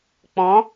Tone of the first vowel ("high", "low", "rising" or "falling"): rising